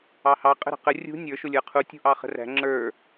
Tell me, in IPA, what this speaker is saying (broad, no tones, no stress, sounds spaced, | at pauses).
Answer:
ɑ h ɑ qʼ ə̤ ɾ ə̤ q ə rʲ ṳ nʲ ə˞ ʃ ʊ lʲ ə˞ qʰ u tʲ ṳ ʔ ɑ χ ə̤ r æ̤ ŋ͡ǁ ə˞